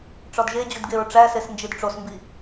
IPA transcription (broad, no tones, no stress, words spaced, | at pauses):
ʈ͡ʂɒdʒed͡ʑudɡeɹ ʈ͡ʂæsesnd͡ʒid ʈ͡ʂosmbi